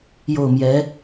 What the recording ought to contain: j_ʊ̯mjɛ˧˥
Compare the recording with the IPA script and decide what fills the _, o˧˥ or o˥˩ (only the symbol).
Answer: o˥˩